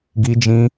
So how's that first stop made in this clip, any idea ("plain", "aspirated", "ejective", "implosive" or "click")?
plain